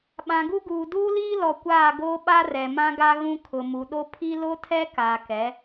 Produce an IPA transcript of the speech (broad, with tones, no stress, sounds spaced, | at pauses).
ɓ ã˨ ɡ u˦ ɡ uː˨ d uː˦ l iː˦ l ɔ˨ kʷ aː˦˨ ɡ oː˦ ɓ a˦ r ɛ˨ m ã˦ ɡ a˦ ɣ ũ˦ kʰ ʊ˨ m u˨ ɗ o˦ pʰ i˦ l o˦ tʰ ɛ˦ k a˨ k ɛ˨˦